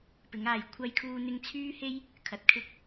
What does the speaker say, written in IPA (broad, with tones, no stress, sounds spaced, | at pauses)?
p ɪ˨˥ ŋ aː˨ j kʷʰ ɐ˧ j kʰ uː˧ n̪ ɪ˧ ŋ t͡sʰ yː˥ h e˥ j | kʰ ɐ˨ t̚ kʰ ɪ˥ k̚